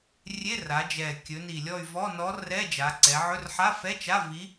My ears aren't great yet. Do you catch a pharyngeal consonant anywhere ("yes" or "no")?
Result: yes